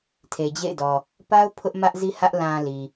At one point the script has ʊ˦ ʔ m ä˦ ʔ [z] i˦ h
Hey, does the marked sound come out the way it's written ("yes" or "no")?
yes